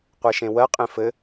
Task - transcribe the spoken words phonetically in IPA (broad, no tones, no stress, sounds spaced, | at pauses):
qʷ e ʃ ẽ w ɜ qʼ ẽ f ɘ